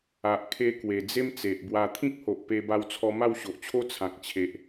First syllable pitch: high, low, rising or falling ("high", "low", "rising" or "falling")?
low